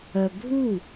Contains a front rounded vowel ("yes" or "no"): yes